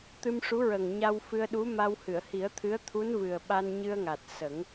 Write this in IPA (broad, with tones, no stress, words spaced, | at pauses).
t̪ɨ˧mʂu˧˥ɹə˨˩ŋ ɲa˧wfɨ˧ə̯ɗu˧˥ma˧w hɨ˨˩˨ə̯hi˨˩˦ə̯t̪ʰɨ˧˥ə̯ t̪ʰu˧˥nvɨ˨˩ə̯ɓa˧n ɲɨ˧ə̯ŋa˨˩t̚ sə˨˩˦ŋ